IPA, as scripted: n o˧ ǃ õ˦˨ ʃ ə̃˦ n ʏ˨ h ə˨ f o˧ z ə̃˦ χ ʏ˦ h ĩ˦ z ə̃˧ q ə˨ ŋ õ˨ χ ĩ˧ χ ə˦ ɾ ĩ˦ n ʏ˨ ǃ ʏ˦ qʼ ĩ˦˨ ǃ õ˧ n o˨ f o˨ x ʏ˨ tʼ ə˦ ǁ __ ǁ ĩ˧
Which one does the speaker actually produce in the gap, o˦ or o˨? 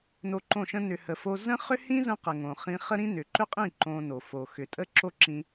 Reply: o˦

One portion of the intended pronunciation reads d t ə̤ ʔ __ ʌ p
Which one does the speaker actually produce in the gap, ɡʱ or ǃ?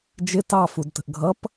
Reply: ɡʱ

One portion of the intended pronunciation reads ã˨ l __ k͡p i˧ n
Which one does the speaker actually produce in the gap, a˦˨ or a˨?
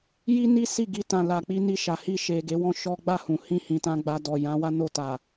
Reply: a˨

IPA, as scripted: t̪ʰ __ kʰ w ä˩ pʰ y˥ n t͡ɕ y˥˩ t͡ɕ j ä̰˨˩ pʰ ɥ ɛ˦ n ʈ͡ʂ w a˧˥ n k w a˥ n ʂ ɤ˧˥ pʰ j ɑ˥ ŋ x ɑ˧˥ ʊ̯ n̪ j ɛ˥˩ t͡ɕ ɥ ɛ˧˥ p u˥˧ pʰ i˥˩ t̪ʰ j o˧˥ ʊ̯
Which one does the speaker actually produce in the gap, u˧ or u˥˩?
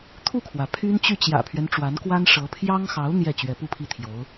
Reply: u˥˩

